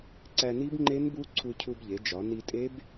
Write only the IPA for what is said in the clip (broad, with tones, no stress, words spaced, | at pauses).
ǀæ˧ni˦˥bŋ͡ǃe˦˥nbu˦˥ ǀʰu˧cʰu˧bʎe˩˧d͡ʒɒ˩˧ ni˧tʼe˦˥b